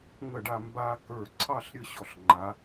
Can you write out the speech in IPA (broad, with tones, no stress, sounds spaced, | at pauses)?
ŋ ə˥˩ ɖ a˥˧ m b a˦˥ k ə˞˥˩ ǀʰ ɑ˥˧ ɬ ɾʲ ə˦˥ ɕ ɔ˥˩ ɬ ŋ͡ǃ a˨˥